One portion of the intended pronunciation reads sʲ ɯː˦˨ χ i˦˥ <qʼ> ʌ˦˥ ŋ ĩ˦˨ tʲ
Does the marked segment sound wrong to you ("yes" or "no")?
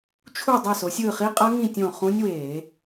no